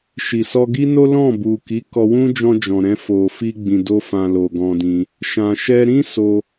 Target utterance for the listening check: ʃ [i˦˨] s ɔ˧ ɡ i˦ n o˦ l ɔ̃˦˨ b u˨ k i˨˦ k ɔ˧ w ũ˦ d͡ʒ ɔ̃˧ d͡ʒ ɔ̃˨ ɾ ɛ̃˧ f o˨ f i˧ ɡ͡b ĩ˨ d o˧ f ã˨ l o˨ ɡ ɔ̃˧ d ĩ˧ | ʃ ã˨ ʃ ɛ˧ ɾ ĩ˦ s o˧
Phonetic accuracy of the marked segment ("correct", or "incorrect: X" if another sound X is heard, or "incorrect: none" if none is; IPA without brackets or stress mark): incorrect: i˨